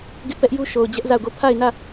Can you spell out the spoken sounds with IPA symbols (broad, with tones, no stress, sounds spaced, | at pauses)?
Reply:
ɡ ɪ˦ ʔ p ɛ˦ ʔ j u˦ ʃ o˨ ʊ̯ d͡ʑ ɛ˦ ʔ z a˦˨ ʊ̯ ɡ o˦˨ pʰ a˦˨ ɪ̯ n ä˦˨